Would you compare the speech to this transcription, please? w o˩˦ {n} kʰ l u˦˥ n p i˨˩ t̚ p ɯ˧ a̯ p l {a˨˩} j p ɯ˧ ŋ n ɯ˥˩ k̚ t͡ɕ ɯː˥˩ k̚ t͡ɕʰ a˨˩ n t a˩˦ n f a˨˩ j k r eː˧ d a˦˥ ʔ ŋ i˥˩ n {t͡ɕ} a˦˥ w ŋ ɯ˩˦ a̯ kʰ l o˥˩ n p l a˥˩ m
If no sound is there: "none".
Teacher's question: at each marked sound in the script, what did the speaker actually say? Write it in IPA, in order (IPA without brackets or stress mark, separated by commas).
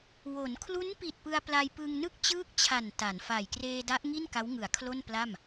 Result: n, a˧, k